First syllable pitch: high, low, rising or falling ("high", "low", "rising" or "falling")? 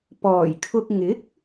low